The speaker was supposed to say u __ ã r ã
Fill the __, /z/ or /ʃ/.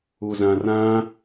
z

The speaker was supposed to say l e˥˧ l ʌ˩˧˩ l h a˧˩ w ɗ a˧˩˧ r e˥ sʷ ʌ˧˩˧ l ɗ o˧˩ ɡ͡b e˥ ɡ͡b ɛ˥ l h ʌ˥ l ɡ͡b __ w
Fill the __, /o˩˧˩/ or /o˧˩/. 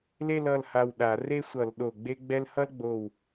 o˧˩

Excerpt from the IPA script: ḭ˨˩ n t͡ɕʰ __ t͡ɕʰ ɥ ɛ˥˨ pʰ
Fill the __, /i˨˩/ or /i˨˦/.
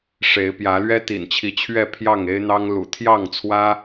i˨˦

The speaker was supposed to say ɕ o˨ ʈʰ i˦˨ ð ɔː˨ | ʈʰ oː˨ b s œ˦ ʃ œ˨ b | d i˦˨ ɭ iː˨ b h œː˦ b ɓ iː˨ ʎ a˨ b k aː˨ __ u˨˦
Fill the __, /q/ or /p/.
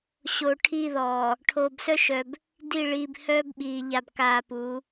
p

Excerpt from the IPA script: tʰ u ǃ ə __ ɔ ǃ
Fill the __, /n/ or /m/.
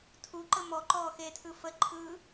m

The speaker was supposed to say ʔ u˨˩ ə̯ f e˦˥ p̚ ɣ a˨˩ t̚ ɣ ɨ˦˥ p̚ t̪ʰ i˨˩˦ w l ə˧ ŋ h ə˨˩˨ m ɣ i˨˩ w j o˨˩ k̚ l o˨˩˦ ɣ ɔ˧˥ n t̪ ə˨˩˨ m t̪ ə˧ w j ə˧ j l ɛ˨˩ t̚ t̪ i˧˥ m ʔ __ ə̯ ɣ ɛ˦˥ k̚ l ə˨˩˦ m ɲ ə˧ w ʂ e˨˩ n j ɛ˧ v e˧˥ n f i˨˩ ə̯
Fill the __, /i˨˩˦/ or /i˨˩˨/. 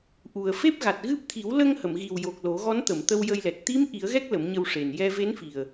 i˨˩˦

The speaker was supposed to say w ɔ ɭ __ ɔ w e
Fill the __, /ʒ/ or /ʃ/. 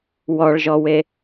ʒ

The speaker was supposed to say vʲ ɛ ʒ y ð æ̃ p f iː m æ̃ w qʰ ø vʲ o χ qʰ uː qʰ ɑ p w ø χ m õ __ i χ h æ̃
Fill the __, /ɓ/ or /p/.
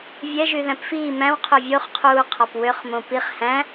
p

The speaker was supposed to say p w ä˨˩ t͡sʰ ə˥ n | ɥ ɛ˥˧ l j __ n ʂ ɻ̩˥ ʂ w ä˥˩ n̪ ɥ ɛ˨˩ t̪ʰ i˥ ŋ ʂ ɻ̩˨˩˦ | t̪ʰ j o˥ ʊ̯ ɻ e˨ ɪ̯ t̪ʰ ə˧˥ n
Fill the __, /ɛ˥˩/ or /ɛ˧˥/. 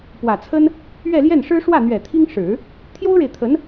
ɛ˥˩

